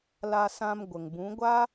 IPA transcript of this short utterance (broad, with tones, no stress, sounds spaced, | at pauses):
l a˧ s ã˧ m ɡʷ ə˨ ŋ b ũ˨˦ ɡʷ a˦